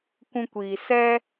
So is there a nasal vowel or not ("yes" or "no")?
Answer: yes